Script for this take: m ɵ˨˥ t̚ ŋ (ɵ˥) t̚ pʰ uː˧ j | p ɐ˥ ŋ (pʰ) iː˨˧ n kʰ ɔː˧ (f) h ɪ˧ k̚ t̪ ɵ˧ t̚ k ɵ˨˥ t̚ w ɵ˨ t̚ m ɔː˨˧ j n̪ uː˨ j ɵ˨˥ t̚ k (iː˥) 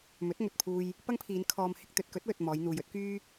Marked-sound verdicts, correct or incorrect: incorrect: ɵ˨, correct, incorrect: m, incorrect: yː˥

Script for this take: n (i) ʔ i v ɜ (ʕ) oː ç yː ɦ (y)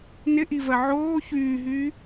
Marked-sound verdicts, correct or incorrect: incorrect: ɪ, correct, incorrect: yː

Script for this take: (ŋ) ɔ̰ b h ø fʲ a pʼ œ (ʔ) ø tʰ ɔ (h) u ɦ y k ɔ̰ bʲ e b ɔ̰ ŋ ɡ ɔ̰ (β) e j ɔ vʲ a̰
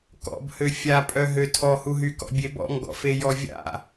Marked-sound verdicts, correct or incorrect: incorrect: k, incorrect: ɦ, correct, incorrect: f

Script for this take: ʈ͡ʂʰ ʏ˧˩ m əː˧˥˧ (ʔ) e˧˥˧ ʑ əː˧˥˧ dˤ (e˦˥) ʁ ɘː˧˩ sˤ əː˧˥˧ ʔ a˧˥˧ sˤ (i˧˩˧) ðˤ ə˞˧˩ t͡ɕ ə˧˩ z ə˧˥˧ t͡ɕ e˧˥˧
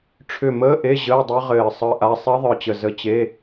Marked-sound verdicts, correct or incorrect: correct, incorrect: ɘ˦˥, incorrect: i˦˥

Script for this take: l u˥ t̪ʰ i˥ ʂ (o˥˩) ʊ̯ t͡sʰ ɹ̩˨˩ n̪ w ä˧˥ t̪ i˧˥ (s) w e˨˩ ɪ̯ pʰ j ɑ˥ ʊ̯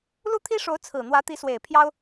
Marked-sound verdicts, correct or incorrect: incorrect: o˧˥, correct

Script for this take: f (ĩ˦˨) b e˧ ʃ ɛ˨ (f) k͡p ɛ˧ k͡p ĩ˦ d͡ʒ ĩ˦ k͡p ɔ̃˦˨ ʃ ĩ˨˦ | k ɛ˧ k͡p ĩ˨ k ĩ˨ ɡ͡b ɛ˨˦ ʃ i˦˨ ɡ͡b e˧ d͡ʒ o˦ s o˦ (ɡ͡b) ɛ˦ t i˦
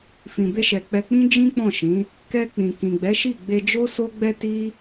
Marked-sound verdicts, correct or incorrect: incorrect: ĩ˨, incorrect: none, correct

